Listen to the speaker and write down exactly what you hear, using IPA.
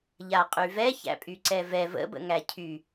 ʎaqʼyvɛ çæ̰pʼyǀɛvɛ və̰ bə̰ŋæcʰy

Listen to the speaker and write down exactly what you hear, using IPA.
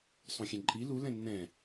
sˤõxʲɛ̃ǃʼi lu lɛ̃nːɛ̃

